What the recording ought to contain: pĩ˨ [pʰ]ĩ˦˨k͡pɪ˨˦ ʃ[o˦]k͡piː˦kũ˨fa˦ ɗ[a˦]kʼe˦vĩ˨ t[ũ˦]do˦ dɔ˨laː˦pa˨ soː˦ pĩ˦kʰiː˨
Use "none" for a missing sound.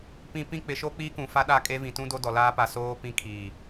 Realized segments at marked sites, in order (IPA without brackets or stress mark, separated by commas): p, o˦, a˦˨, ũ˦